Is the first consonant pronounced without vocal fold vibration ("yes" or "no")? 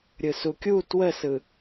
no